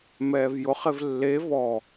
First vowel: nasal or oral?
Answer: oral